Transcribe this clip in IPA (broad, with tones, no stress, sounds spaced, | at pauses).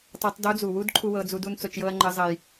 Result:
tˤ ɤ˧˥ tˤ d o˧˥ d͡z u˩ w u˥ d ǃʰ u˥ w ɤ˧˥ d͡z u˧˥ d u˥ n t͡s o˧ t͡ʃ j ɤ˥ ɐ̯ ŋ͡ǃ ə˧˥ zˤ ə˧ j